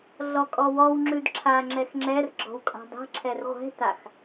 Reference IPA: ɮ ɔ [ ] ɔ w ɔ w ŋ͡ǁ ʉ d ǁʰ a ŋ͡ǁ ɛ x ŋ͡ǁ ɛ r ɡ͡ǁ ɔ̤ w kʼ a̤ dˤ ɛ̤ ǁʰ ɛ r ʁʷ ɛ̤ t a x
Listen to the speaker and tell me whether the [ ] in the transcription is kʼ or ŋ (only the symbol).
kʼ